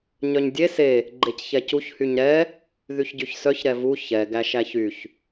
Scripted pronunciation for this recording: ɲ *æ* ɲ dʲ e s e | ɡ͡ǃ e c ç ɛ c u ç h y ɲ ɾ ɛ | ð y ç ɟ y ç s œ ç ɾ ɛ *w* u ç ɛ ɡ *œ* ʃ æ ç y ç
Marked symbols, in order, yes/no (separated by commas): no, no, no